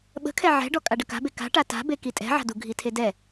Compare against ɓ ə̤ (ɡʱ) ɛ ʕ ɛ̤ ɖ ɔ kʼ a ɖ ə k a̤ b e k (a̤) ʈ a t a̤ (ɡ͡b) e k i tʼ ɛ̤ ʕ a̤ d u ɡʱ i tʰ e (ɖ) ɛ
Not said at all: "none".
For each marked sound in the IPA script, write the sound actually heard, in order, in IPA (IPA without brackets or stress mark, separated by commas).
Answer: kʰ, a̤, b, d